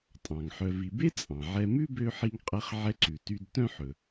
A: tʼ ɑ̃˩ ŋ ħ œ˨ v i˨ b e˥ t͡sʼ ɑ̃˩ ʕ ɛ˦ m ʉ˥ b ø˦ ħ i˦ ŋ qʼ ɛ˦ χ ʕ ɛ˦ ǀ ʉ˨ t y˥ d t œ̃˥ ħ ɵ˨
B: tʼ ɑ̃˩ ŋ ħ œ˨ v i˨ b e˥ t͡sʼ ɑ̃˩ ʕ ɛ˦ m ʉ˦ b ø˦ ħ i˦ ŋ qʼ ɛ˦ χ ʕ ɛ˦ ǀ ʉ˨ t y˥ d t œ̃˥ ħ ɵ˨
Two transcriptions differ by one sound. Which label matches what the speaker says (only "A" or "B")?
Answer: A